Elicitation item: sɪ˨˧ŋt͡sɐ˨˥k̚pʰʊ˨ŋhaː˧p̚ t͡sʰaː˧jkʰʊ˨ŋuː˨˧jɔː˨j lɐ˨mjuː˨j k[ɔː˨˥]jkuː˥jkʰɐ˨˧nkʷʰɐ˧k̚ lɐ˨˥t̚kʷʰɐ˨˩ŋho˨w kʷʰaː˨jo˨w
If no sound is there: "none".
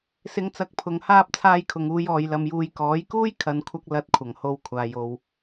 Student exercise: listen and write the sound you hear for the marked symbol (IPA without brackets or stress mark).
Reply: ɔː˨˥